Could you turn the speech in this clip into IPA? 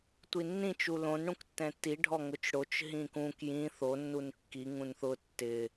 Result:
tʷ i nː ĩ t͡ʃ u l õ n ɽ ũ k tː ɛ̃ tː i ɖʱ ɔ ŋ ʊ t͡ʃ ɽ o t͡ʃ ɦ ĩ k ũ k j ĩ θ o nː u n kː i ŋ ũ n θ ʊ tː ɪ

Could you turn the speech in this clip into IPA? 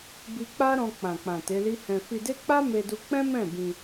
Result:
b i˧ k͡p a˦ ɾ ɔ̃˧ k͡p ã˨ k͡p ã˨ t e˨˦ l i˦ h ɛ̃˧ f i˧ d e˦ k͡p a˦ m e˧ d u˧ k͡p ɛ̃˦ m ɛ̃˦˨ b ĩ˧

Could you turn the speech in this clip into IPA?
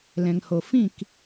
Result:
l ɛ̃˨ ŋ h o˨ f ĩ˦˨ k

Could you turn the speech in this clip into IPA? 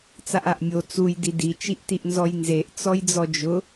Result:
t͡s a ʔ a ʔ mʲ o t͡s u j d i d i t͡ʃ i ʔ t i ʔ n z ɔ j n z e ʔ t͡s ɔ j d͡z ɔ d͡ʒ ʊ

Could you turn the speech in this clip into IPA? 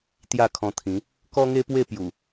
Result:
t̪ j a˥˧ kʰ ɔ̃˧ t̪ʰ ĩ˨˦ | k ɔ˦ ŋ e˦ p w e˥˧ p j u˨˩

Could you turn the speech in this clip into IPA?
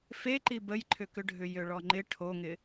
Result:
f e ǃ i b ə j ǃʰ ʏ k ʏ ɖʱ ʏ j ø ɭ ɔ ŋ͡ǃ ɪ ʈʰ o ŋ ɪ

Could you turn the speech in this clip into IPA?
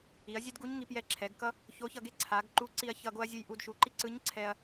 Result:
i˩˧ ɐ̯ zʲ ɛ˥ d ɡ u˧˥ ɲ ŋ i˩˧ p j ɛ˧ ǁʰ ɛ˩˧ ɡ k ʌ˥ | ç o˧˥ ç ʌ˧ ɡ e˥ ǀʰ a˩˧ ɡ ǃ u˧˥ ǀ i˧ ɐ̯ ç ʌ˧ ɡ o˥ ɐ̯ zʲ ɯ˧ j ʔ u˧ d ʃ u˩˧ ǃ i˥ ǀ ɯ˧˥ ɲ ǀʰ ɛ˧ ɐ̯

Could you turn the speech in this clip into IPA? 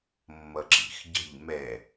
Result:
mː ʌ ǁ ḭ x ɟ ə̤ ʎ m ɛ

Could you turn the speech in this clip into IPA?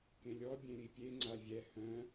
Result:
k ẽ lʲ ɔ bʲ ẽ ɾ i pʲ e ŋ͡ǀ a vʲ ɛ h œ̃

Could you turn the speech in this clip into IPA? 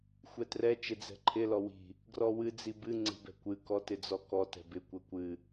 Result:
xʷ ɛ t r ɛ t͡ʃ ɪ d͡z ɛ̤ ǃʰ ɪ l ɔ w i̤ | ɡ r ɔ w ɨ d͡z i b ɨ ŋ͡ǀ i̤ b ɛ̤ kʷ ɨ k ɔ t ɪ d͡z ɔ k ɔ t ɛ̤ b ɪ kʷ ɛ kʷ ɨ

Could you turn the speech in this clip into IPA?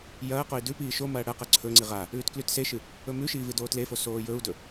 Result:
j ɐː q o i̯ d ʉ p iː ʃ o m ɐː ɽ ɐ q ɐ ǀʰ ɵ ŋ͡ǀ i ʁ a | ʉː t k l ʉ t s e ʃ ɨ | ɵ m ʉ ʃ iː v ɨ d oː t l e f o s oː j ɵ u̯ d ɵ

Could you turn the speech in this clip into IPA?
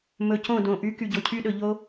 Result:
m ɵ˨ c õ˦˨ d õ˨ ʔ y˨˦ k y˨ ɟ o˨ cʰ y˦ ɗ ɵ˨ ʎ o˦

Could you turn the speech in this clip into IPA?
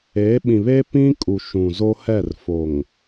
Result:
e˨˦ ɓ ĩ˨ β e˦ p ĩ˦ kʼ u˨ ʃ ũ˨ z o˦ h ɛ˦˨ r f o˨ ŋ

